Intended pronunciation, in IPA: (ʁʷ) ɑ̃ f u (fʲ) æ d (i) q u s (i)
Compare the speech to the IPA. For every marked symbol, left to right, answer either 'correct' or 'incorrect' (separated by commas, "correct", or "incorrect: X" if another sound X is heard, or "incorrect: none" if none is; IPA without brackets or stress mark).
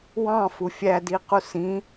incorrect: w, correct, correct, incorrect: ĩ